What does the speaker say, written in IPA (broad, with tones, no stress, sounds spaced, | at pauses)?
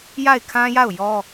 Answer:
j a˦˨ ɪ̯ kʰ ã˦ j a˦˨ ʊ̯ j ɔ˦